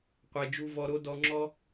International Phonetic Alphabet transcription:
qʷe˦ d͡ʒu˦vɔ˦ɾo˥ dɔ˦ŋ͡ǁɔ˥

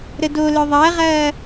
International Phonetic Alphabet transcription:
ɾədolœ ðˤɐːʁɐː

